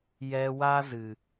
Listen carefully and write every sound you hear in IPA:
j ɛ˧ w a˦ z ɨ˨

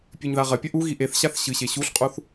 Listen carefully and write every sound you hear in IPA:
pʲ ʉ ɲ ð a ʁ ɐ pʲ ɐ ʔ u ɣ i ʔ e θ ɕ a θ ɕ ɨ ɕ e ɕ u ɬ qʼ u θ

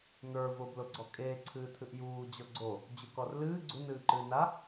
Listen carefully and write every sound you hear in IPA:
n̪ ə˞ v ʊ b l ʊ ɡ͡ǀ ɔ kʼ eː ǀʰ ɨː t̪ʰ ɨ ʔ j uː d͡ʑ ɔ ɡ͡ǀ o | d͡ʑ u k ɔ r l ɨː ɡ͡ǀ u n ɨː ǃ ɨː n a

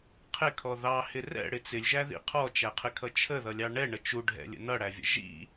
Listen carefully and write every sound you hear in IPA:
qʰ ɪ kʰ ɔ ð ɑ h ɪ r ɛ̰ ɽ ɪ t͡s ɪ lʲ ʒ æ ð ḭ qʰ ɔ t͡ʃ æ qʰ ɪ kʰ ʌ t͡ʃʰ ə ð ʌ lʲ ɑ ɳ ɛ ɳ ə t͡ʃ u ɖʱ ɛ̰ lʲ ə̰ n ʌ ɽ æ vʲ ə̰ ʒ ḭ

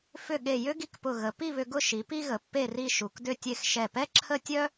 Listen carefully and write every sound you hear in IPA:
f ʏ˧˩ ɠ e˧˩ j ʏ˥ ɡ i˧ k p ʊ˧˩ ɣ ə˩˧ p i˥˧ β ʏ˧ ɡ ʊ˥˧ ʃ i˩˧ p i˥ ɣ ə˩˧ pː e˥˧ r i˥˧ ʃ u˩˧ k d ʏ˥˧ tʲ e˥˧ x ʃ ɛ˧˩ p ɛ˥ ǁʰ ə˥ tʲ œ˥

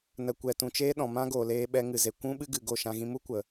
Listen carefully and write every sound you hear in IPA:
n ə˨ kʷ ɛ˨ t ũ˨ t͡ʃ eː˦ ɗ ɔ̃˨ m ã˦ ɡ o˨ l eː˧ ɓ ɛ˧ ŋ ɨ˨ z e˨ kʷ ũ˦ ɓ ɨ˦ ɡ ɨ˨ ɡ o˦˨ ʃ ã˧ ɣ ĩ˧ m u˦ kʷ ə˨

